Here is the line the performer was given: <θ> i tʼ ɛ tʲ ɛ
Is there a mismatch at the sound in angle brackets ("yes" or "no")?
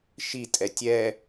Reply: yes